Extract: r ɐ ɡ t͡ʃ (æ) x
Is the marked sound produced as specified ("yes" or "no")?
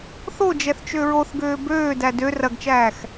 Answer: no